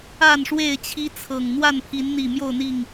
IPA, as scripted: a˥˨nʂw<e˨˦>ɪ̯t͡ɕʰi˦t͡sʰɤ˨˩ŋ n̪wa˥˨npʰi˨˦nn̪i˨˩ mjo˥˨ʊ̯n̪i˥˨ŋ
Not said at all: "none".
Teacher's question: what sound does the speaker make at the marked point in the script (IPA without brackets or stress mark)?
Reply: e˥˨